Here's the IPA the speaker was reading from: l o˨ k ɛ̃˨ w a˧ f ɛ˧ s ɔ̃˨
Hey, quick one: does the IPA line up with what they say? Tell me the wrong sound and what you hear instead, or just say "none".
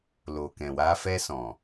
none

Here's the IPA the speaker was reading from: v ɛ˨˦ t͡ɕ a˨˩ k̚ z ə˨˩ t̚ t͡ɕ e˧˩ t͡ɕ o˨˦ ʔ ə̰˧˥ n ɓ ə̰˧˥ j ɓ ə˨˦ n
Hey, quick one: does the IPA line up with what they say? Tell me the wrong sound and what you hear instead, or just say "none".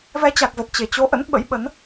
none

